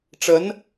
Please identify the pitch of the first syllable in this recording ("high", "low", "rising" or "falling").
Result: rising